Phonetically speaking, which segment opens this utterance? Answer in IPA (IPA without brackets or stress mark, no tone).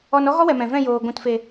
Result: ɔ